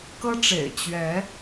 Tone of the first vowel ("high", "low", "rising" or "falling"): high